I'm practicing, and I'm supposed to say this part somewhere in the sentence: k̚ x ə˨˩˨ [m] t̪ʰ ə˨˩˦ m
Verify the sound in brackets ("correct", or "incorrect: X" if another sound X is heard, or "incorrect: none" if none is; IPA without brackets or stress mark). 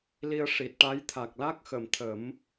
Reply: correct